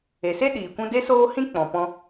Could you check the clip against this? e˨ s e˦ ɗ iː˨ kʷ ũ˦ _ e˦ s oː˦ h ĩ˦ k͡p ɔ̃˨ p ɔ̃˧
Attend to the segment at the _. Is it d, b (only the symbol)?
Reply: d